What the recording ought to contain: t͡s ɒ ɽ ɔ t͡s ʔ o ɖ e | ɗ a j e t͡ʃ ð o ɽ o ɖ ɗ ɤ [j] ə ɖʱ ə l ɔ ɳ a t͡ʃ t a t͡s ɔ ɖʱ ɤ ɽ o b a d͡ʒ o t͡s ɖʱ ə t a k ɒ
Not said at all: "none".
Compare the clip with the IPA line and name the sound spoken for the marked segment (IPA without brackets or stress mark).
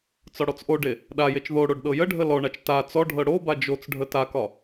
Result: j